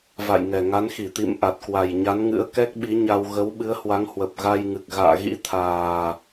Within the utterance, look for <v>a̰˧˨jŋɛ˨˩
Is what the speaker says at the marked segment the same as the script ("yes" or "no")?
yes